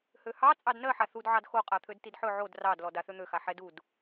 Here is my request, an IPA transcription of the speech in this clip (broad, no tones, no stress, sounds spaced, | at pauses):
h ø h ɑ t͡sʼ ɑ d n ɜ ħ a θ u d ʕ ɑ d x o qʼ a t̪ʰ ø d t i d ħ ɵ ʕ o d r ɑ d l ɔ d a θ ø n̪ ø x a ħ ɛ d u d